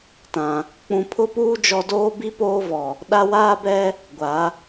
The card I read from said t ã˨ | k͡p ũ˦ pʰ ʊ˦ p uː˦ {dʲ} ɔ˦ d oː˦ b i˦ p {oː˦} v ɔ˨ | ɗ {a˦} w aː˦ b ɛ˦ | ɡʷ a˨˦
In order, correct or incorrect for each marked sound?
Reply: incorrect: d͡ʒ, correct, correct

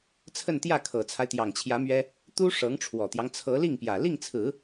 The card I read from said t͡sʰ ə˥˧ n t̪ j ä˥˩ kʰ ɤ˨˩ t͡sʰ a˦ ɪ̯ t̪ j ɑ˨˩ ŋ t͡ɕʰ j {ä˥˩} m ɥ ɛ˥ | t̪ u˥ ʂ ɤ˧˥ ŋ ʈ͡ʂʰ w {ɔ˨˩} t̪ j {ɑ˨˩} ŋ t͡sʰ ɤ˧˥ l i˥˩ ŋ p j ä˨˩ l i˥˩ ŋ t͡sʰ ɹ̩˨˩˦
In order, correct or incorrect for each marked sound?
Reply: incorrect: ä˧˥, correct, incorrect: ɑ˦

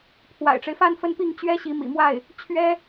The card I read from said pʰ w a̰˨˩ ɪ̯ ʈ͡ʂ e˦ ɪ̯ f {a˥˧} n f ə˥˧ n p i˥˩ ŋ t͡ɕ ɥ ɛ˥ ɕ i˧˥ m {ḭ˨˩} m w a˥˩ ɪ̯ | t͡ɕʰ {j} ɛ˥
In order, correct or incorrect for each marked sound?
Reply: correct, correct, incorrect: ɥ

